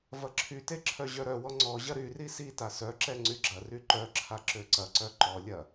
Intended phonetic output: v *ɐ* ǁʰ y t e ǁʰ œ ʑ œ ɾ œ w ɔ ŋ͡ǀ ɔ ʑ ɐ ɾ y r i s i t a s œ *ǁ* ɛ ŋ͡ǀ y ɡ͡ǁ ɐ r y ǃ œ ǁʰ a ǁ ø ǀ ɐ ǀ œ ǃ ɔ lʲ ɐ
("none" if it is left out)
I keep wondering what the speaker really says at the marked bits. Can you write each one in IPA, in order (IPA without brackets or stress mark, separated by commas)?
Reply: ɐ, ǁ